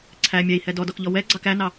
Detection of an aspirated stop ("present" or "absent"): present